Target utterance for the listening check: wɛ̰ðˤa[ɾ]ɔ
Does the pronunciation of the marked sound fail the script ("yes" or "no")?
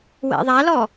yes